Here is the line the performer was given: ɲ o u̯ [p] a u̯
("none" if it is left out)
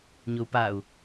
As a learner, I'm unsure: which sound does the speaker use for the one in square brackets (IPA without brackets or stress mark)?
p